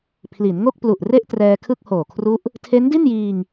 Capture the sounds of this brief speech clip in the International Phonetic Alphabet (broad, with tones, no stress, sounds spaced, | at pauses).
pʰ l i˩˦ n ŋ o˥˩ k̚ p l u˨˩ ʔ r e˥˩ ʔ t r ɛː˧ kʰ ɯ˥˩ k̚ h oː˨˩ kʰ r u˦˥ ʔ | tʰ e˦˥ n d i˥˩ n j iː˧ ŋ